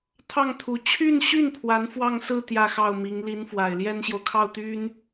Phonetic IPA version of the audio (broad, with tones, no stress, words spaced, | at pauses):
t̪ʰɑ˥˩ŋ t̪ʰu˧˥ t͡ɕʰy˥˧nɕy˥˩n pʰwa˧˥nfwɑ˥˧ŋsɹ̩˥˧ t̪jä˥˧xɑ˥˩ʊ̯mi˧˥ŋ li˧˥nfwa˨˩ɪ̯ljɛ˥nɕjo˨ʊ̯ kʰɑ˥˩ʊ̯t̪y˥n